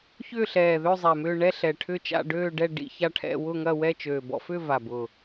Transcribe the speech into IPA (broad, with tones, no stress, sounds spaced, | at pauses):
ç ʏː˥˧ ɬ ɛː˨˩ ð ø˥˧ zˤ ɛ˨˩ m ʏː˥˧ ɳ ɛ˥˧ ɬ ɛ˨˩ ʈʰ ʏ˥˧ t͡ʃ a̰˥˧ ɖ øː˥˧ ɖ ɛ˥˧ ɖ ḭ˥˧ ç a˥˧ ʈʰ ɛ̰˥˧ w ʊ˥˧ ŋ ɐ˥˧ w ɛ˥˧ t͡ʃ øː˨˩ b ɔ̰˥˧ f ʏː˥˧ v a˨˩ b ʊː˨˩